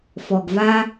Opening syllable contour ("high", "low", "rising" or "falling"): low